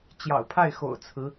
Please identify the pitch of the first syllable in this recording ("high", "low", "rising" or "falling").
low